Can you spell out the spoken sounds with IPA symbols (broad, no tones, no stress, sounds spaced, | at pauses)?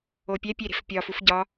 o pʲ æ pʲ e ɾ e̤ f pʲ ɒ f u f ɟ ɒ